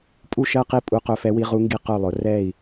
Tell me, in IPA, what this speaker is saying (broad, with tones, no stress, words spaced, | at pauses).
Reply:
pʼu˥˧ʃɜ˥˧ qi˥˧ pʼu˧˥qɵ˧˥fɛ˧˥wi˧˥ ʁu˧˥ŋɡi˥˩ qɵ˥˩lˠʊ˩˥ rɛ˥˩i̯